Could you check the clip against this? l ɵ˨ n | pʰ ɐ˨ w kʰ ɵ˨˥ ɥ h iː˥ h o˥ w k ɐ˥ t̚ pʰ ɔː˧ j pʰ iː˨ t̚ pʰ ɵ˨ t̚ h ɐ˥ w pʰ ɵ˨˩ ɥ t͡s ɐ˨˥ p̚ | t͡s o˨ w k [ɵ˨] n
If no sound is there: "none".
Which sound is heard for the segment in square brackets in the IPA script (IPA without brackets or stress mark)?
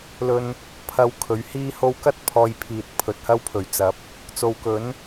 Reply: ɵ˨˥